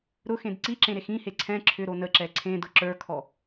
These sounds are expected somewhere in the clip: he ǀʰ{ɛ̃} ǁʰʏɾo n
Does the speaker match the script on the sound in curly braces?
yes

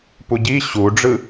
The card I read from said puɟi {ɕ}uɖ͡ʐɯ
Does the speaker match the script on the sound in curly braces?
yes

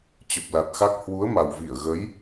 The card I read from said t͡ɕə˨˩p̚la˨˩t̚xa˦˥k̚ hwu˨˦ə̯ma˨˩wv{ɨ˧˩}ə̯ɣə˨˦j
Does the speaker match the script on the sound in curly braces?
no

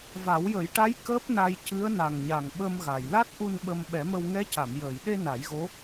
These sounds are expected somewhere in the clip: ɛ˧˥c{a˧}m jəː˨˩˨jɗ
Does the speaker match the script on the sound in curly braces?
no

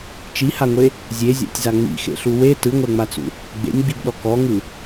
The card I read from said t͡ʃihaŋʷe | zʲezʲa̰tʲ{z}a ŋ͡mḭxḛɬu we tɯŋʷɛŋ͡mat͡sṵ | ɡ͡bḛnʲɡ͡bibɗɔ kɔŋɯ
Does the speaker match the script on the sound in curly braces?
yes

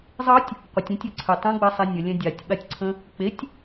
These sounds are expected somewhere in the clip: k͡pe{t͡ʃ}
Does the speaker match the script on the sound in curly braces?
no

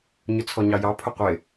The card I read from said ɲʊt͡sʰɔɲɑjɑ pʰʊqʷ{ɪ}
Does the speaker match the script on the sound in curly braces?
yes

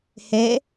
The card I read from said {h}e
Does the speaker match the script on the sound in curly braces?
yes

